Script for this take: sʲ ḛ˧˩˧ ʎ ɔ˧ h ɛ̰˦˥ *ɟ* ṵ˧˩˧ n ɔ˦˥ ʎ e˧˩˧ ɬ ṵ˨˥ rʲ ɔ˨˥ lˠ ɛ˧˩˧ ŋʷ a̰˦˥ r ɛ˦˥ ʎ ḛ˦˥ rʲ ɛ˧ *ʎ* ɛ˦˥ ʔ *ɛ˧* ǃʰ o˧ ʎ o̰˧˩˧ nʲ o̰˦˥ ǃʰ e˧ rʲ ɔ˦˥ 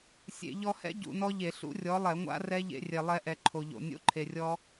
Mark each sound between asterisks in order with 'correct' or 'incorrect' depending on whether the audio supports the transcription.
correct, incorrect: lˠ, correct

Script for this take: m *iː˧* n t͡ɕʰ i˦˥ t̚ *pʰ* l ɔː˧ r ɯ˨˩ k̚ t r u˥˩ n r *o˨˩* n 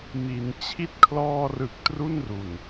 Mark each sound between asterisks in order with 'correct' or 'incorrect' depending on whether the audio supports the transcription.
incorrect: i˧, incorrect: kʰ, incorrect: u˨˩

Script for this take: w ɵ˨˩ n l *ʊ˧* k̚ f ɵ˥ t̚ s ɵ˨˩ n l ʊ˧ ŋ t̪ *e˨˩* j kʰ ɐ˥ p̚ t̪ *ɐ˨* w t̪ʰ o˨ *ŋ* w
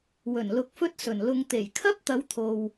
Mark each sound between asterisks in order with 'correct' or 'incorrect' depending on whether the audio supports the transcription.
correct, correct, incorrect: ɐ˨˧, incorrect: none

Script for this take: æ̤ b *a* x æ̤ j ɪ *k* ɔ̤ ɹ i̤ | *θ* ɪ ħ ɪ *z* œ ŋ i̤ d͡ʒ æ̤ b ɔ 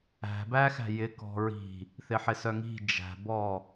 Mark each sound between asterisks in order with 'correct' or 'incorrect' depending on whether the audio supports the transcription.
incorrect: æ, correct, correct, incorrect: s

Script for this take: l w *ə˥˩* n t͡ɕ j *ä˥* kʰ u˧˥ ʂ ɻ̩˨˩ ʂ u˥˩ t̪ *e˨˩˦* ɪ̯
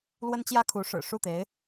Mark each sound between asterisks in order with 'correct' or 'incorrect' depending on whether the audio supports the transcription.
incorrect: ə˥, correct, incorrect: e˧˥

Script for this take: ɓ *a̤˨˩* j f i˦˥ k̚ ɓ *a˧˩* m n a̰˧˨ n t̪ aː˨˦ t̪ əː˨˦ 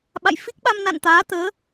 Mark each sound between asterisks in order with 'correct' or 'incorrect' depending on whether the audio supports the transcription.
incorrect: a̰˧˨, incorrect: a˧

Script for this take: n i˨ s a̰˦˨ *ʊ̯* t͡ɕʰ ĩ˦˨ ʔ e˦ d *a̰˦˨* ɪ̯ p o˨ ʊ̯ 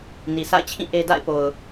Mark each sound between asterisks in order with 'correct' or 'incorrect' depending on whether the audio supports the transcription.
incorrect: ɪ̯, correct

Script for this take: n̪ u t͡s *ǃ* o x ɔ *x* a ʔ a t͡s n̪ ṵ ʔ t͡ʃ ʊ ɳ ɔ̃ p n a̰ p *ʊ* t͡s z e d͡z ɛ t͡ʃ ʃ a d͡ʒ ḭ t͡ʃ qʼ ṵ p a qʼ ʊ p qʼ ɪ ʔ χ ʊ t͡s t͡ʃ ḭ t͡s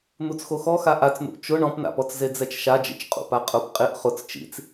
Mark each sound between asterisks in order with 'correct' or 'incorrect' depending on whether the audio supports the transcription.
incorrect: x, correct, incorrect: ɔ

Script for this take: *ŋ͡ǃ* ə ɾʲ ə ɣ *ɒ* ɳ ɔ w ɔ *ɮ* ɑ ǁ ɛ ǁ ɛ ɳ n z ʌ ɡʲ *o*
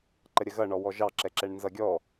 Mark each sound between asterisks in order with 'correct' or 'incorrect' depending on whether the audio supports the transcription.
incorrect: ǃ, incorrect: ʌ, incorrect: ʒ, incorrect: ɔ

